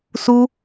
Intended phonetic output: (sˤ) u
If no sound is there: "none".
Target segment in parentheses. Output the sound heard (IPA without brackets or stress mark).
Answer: s